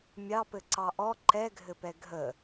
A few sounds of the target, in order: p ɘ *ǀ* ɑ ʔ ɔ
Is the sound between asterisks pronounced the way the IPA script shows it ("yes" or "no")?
yes